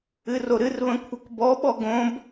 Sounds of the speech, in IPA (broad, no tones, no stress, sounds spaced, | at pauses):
ɨ r o ɾ ɨ r β ə̃ kʷʰ ə k b ɔ ɓ ɔ ɡ õ b